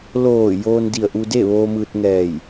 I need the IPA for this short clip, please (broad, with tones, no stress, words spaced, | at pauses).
loː˧˩ joː˧ndi˧˩ə̯ʔu˧de˥˨ ʋoː˧mɯː˧t̚ŋɛː˧˩j